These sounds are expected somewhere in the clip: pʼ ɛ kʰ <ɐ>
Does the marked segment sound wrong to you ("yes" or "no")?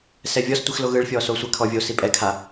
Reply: yes